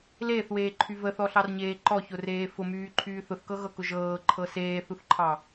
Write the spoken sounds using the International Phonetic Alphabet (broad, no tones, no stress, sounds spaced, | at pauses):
l eː θ w eː ǃʰ y v ə θ ɔ ɬ ɑ r ɲ eː ǃ ɔ ç ʊ r eː f ʊ m yː ǃʰ yː θ ʊ θ k ɤ ɣ ɤ k ʊ ʒ ɤː ǃʰ ɤ s eː θ u θ ǃʰ ɑ